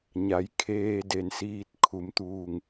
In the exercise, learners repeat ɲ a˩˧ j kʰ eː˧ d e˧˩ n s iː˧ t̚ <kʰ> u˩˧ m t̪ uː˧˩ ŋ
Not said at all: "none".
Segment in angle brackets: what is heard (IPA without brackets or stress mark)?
kʰ